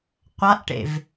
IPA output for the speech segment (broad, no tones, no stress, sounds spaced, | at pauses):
qʷ a ʔ ʈ ḛ v